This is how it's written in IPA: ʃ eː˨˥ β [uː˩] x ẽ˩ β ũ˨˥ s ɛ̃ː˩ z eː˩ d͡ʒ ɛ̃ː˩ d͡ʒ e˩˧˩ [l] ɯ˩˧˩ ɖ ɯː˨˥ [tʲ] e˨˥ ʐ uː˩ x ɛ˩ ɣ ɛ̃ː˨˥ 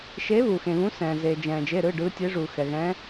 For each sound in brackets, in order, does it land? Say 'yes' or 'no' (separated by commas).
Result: yes, no, yes